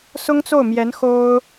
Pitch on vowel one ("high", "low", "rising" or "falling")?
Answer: high